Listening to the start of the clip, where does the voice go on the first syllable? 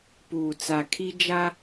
low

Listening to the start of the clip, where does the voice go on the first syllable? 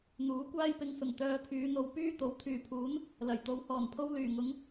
rising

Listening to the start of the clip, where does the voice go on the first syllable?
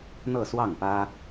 falling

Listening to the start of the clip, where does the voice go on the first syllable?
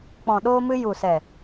low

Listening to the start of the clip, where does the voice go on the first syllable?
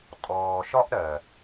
low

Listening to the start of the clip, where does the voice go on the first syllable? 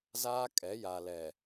high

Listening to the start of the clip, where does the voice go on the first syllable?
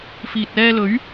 low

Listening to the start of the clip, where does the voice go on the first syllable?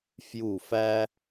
falling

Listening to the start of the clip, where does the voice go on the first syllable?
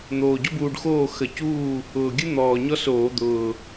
low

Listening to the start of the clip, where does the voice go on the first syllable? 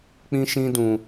high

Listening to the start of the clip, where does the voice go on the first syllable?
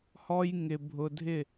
high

